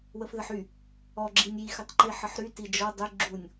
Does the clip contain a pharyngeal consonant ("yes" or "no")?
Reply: yes